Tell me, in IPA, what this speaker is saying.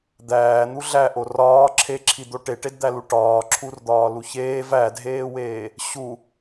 d̪ æː n̪ u ɮ æ ʔ o r ɒː ǁʰ e ǁʰ i d̪ o ʈ e ʈ e d d̪ æ l u ʈ ɒː ǁʰ u r d̪ ɒː l u ç eː v æ dʱ eː w eː | ɕ u

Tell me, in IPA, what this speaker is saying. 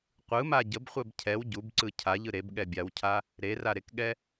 qʷ ɯ m a ɟ ə b χʷ ɛ b cʰ ɛ w ɟ u b ǀ ɯ cʰ a ʎ ɯ ɾ e b ɠ ɛ bʲ a w cʰ a | ɾ e r a ɾ e k ɠ ɛ

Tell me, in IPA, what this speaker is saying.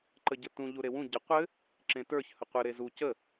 ǃ ə ɟ ɘ t ũ ʎ u ɾ e w ũ ɟ ə qʷ ɘ | ǁ ẽ t ə˞ ç h ə qʷ ɘ ɾ e z u c ə

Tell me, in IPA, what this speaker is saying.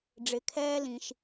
ɖ͡ʐ ɪ˩ kʰ ɛː˦ l ĩ˩ ʃ

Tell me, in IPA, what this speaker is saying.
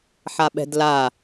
ħ a ɓ ɛ̤ d l a

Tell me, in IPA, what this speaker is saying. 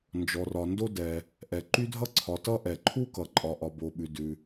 n d͡ʒ ɔ˩ r ɒ˩ n d o˥ d ɛ˩ | ʔ ɛ˩ ǃ y˥ dʱ ʌ˥ ǀʰ ɒ˩ t ʌ˥ ʔ ɛ˩ ǃʰ u˥ k ʌ˩ ǃʼ ɒ˩ ʔ ɒ˩ b o˩ ɓ ʉ˩ d ʉ˩

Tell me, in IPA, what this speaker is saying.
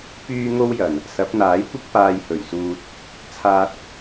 p yː˥ ŋ o˥ w j ɐ˨˩ n | s ɐ˨˥ p̚ n̪ aː˨˥ j kʷ ɪ˥ k̚ p aː˧ j h ɵ˨˩ ɥ s uː˧ t̚ | t͡sʰ aː˧ t̚

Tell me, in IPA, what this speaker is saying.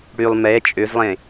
ɽ y lˠ m ɛ t͡ʃʼ ø z lˠ ẽ

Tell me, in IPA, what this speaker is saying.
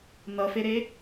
n ʌ f e ɾ e

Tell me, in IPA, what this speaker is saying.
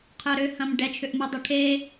qʰ œ ɾ ʏ h ɐ̃ m ɖ ɛ t͡ʃʰ ʏ ʔ m u dˤ u ʈʰ e

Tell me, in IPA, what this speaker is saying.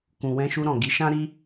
k ũ˨ w ɛ̃˧ ʃ u˧ ɾ ɔ̃˨ ɡ i˨˦ ʃ ã˦ ɾ i˦

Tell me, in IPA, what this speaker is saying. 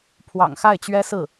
pʰ w ɑ̰˨˩ ŋ x a˥˩ ɪ̯ t͡ɕ ɥ ɛ˥ s ɹ̩˥˩

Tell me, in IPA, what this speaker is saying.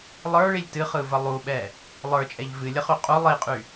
lˠ ə˞ ɭ i lʲ t ɨ χ ɯ v ə lˠ u ɓ ɛ | lˠ ə˞ t͡ʃʼ ɛ ʎ v ɨ lʲ ə χ y qʼ u lˠ i qʼ y

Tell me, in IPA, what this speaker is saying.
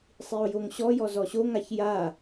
sˤ i o̯ j o ŋ ɕ ɔ j ɔ z ɔ ɕ o ŋ a ç j a

